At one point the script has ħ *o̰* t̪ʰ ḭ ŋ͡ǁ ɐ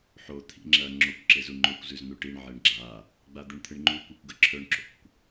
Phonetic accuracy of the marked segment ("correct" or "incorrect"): incorrect